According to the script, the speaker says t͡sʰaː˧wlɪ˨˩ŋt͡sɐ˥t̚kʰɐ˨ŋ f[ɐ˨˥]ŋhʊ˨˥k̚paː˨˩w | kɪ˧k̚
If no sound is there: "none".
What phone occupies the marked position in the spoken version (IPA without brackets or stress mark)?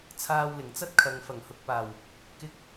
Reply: ɐ˨˩